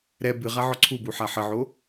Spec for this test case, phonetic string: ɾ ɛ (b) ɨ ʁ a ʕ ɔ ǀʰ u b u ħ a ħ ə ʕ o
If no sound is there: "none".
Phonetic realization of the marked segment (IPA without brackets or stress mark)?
b